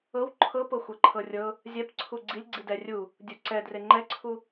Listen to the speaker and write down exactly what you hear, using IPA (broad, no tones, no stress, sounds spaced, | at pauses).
ɤ w ǃʰ ɤ p ɤ xʷ ɤ ǃʰ ɤ rʲ ɤ | zʲ ɛ p ǀʰ u ɡ͡ǀ i lʲ ɡ͡ǀ i d ɛ rʲ u | dʲ u ǀ ɛ d r e ŋ͡ǃ ɛ ǀʰ u